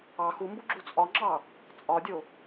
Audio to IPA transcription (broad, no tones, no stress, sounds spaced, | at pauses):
ɑ x u m b u ɡ͡ǁ u t͡sʼ ɒ ŋ͡ǁ ɑ | t͡sʼ ɒ dʲ o